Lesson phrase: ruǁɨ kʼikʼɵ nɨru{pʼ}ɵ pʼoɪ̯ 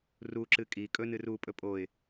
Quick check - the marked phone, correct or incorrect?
correct